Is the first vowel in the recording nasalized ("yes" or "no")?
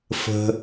no